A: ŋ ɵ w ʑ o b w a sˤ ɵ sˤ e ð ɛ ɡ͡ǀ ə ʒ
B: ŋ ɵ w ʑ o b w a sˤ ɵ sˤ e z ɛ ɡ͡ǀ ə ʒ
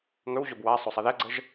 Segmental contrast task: A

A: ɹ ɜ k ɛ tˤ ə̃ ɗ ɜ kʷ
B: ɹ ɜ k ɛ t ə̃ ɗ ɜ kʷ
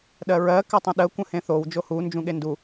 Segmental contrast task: A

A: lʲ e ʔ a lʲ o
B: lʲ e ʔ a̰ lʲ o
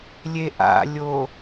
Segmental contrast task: B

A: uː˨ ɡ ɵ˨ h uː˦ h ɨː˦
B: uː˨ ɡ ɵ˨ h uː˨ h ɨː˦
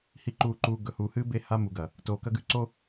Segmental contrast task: B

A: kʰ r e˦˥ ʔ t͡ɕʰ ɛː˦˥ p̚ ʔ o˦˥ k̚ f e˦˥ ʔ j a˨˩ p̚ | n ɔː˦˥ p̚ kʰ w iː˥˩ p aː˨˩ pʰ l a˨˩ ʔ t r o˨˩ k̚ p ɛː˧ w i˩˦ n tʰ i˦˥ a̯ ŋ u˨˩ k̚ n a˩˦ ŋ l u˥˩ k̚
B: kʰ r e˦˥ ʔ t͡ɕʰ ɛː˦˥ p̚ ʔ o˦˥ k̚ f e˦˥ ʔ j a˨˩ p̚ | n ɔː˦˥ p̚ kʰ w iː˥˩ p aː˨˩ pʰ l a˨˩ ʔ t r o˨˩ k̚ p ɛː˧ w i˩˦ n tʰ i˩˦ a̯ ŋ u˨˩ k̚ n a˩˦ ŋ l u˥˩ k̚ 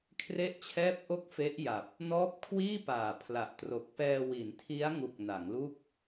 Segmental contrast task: A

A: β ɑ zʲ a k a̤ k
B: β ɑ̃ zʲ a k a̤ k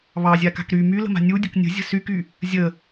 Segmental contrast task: A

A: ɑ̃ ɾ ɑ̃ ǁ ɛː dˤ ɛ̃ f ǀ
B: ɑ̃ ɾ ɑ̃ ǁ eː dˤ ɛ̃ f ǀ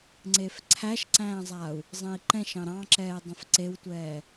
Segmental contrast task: A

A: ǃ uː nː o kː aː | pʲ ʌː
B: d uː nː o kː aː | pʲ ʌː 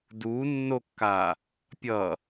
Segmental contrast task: B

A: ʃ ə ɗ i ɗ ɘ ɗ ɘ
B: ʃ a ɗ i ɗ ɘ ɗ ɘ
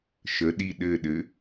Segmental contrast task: A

